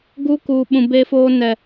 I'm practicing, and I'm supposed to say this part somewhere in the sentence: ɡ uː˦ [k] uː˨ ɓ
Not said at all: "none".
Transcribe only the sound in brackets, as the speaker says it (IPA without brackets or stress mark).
k